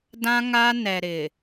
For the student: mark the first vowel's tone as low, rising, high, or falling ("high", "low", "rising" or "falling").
high